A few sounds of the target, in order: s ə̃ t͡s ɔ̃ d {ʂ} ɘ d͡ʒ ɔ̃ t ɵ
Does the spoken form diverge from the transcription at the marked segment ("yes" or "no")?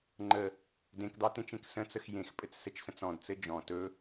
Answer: yes